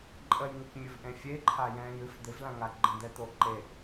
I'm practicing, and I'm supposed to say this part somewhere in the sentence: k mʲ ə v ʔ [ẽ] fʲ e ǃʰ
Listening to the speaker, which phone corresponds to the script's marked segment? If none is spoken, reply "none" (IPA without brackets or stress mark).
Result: ẽ